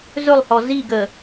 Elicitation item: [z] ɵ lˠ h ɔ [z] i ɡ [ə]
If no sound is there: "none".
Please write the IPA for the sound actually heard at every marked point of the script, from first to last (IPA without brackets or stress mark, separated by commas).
z, z, ə